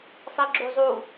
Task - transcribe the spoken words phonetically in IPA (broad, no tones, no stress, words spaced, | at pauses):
sˤiɡ͡ǁuzˤu